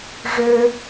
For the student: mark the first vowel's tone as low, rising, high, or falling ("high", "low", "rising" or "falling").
low